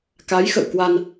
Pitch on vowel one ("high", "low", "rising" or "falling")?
rising